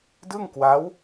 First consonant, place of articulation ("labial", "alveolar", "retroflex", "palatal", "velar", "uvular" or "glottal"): alveolar